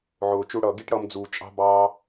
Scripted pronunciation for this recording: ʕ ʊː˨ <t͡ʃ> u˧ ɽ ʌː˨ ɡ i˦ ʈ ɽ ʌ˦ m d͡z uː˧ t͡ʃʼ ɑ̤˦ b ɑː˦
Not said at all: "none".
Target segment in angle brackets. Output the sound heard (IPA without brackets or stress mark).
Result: t͡ʃ